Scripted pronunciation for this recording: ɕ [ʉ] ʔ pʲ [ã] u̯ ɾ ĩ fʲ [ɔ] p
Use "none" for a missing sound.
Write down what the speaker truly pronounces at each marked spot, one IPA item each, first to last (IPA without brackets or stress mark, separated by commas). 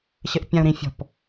ɘ, ã, ɔ̤